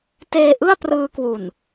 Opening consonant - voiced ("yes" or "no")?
no